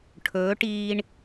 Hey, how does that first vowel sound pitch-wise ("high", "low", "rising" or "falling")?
rising